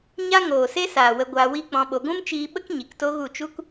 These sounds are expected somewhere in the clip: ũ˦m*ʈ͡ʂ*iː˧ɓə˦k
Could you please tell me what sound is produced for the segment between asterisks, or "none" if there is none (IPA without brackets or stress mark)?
t͡ʃ